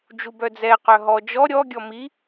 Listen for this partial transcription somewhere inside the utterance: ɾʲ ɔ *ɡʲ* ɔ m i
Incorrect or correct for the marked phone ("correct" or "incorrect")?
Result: correct